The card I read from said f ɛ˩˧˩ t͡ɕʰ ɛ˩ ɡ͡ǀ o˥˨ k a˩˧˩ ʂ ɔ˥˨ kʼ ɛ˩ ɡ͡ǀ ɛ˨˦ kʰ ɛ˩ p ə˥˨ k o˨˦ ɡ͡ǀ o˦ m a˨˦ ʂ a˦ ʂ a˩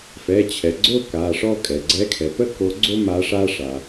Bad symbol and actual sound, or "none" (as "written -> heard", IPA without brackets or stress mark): none